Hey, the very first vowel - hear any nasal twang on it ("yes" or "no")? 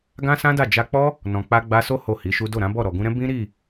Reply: yes